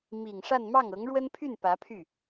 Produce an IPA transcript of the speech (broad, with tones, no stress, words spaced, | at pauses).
mi˨˩ŋʂa˥˧n mɑ˥˩ŋɤ˧˥ŋɻwə˥npʰy˥˩n pä˧˥pʰy˥˩